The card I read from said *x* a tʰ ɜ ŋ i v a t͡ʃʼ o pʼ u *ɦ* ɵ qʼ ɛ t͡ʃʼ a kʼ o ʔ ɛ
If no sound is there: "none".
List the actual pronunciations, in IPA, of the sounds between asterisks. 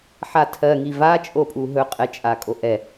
ħ, ɦ

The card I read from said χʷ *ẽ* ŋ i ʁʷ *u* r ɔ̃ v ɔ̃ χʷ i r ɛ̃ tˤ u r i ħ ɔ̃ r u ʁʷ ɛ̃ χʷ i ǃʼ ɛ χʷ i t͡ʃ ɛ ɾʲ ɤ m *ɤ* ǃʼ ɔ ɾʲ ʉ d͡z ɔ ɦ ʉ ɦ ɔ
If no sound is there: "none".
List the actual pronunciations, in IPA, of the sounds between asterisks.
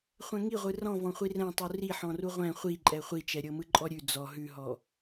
ɛ̃, ɯ, ɯ

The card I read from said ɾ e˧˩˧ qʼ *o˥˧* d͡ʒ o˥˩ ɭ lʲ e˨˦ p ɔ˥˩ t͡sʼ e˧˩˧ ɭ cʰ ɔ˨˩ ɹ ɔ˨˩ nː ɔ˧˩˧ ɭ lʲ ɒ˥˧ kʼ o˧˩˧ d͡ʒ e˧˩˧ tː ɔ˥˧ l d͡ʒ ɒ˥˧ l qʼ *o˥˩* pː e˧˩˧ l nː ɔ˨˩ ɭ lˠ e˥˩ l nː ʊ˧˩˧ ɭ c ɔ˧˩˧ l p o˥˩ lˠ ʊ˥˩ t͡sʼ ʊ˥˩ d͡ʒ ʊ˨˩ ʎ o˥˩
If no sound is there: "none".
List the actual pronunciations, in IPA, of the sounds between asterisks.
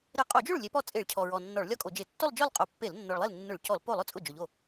o˧˩˧, o˧˩˧

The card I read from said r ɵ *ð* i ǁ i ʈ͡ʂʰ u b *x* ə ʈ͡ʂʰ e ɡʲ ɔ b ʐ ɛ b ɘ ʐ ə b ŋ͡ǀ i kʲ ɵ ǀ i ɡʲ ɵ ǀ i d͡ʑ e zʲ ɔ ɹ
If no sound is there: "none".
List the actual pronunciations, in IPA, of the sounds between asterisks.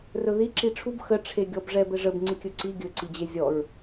ð, x

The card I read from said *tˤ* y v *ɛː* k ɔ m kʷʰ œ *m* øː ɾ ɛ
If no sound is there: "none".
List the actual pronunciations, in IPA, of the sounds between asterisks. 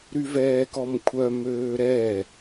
ɾ, ɛː, m

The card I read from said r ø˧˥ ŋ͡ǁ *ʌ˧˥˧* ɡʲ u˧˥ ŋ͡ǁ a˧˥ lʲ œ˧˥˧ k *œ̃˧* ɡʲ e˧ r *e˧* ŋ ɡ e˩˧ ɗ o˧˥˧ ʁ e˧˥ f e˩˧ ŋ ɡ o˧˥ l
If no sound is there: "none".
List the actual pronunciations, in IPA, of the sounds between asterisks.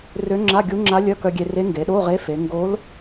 a˧˥˧, œ˧, e˧˥

